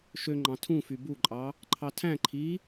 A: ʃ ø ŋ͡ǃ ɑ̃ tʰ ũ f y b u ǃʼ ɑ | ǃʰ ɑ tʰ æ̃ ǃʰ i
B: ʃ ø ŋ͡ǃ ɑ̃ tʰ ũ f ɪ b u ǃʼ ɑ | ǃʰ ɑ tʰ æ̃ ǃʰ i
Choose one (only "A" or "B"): A